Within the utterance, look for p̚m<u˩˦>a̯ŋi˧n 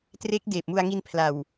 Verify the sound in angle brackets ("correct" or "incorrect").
incorrect